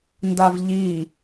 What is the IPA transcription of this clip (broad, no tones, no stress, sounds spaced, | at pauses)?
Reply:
n d a v ʎ i